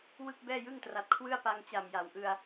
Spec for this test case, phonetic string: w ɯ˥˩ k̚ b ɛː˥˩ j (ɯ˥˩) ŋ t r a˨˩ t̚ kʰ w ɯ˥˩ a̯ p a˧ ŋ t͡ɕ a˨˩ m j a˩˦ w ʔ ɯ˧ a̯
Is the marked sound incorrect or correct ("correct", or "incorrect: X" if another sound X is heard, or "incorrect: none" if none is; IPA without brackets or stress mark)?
correct